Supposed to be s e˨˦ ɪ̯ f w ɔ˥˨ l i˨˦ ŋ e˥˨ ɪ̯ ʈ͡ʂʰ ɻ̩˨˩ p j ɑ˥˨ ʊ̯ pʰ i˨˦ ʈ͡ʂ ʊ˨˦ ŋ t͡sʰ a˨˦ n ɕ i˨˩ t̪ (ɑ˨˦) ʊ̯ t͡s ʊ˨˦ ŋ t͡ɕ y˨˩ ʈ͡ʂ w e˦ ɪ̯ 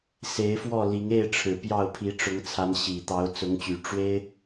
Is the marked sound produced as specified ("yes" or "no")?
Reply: yes